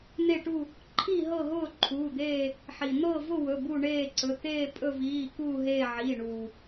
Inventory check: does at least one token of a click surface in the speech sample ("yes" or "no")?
yes